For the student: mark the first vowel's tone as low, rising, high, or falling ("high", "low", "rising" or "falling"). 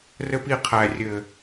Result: high